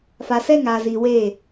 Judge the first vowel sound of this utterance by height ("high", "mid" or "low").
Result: low